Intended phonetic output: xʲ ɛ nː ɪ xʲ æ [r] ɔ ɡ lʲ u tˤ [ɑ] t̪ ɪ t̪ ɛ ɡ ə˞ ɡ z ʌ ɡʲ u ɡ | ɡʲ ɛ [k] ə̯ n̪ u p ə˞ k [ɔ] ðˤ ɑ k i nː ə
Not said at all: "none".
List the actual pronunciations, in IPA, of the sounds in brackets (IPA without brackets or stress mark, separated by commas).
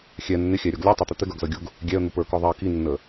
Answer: ɾʲ, ʌ, none, ɔ